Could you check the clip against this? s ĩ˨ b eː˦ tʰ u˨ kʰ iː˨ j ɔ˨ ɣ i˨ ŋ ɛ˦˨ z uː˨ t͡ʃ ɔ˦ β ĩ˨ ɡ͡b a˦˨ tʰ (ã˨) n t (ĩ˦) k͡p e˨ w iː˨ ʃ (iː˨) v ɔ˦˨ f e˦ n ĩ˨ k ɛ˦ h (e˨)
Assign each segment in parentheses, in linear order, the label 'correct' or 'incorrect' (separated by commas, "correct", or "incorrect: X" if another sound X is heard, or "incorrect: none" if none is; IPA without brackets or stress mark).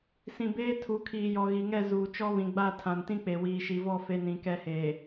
correct, correct, incorrect: i˨, incorrect: eː˨